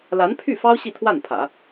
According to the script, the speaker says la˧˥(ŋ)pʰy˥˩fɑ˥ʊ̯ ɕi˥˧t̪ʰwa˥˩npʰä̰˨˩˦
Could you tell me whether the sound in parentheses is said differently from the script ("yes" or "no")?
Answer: yes